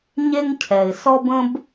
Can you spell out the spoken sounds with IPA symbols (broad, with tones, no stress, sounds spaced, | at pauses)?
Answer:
ɲ e˥ ŋ cʰ ɛ˩ ɪ̯ s ɔ˥ b ə̃˥ b